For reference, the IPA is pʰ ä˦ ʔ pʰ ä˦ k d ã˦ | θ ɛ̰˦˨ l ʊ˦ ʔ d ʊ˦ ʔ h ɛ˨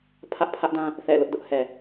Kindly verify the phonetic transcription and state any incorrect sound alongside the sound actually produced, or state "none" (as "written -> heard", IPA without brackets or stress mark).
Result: k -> ʔ